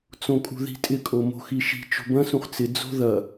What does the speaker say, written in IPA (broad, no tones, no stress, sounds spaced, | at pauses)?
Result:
t͡s õ kʼ ṳ ð i̤ tʼ ɪ kʼ o m o̤ x i ʃ i̤ t͡ʃ o̤ b ɐ̃ s ũ χ t͡s ɪ d͡z o̤ ð ɐ